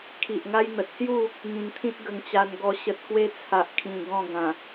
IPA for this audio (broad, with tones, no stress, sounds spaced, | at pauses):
kʰ i˨ ʔ ŋ a˦ j n̪ ə˨ t̚ s j u˥˧ | ŋ ĩ˨˩ n t̪ʰ ĩ˦ t̚ ɡ ə˧ ŋ t͡ɕ a˧ n ɡ ɔ˧ ɕ ə˨ t̚ k w e˦ t͡sʰ a˨ ʔ kʰ ĩ˨˩ ɡ ɔ̃˥˧ ɡ ã˨˩